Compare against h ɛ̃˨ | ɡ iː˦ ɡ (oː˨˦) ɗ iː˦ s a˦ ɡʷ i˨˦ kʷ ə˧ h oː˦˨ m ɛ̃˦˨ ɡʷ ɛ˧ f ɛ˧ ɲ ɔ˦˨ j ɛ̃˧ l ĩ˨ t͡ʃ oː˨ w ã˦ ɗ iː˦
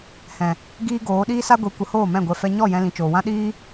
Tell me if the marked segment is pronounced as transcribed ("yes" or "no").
yes